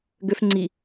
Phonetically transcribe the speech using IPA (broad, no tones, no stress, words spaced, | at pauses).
ɡøf ŋ͡ǀi